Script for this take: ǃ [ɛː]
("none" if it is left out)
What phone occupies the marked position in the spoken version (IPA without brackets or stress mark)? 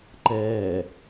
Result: ɛː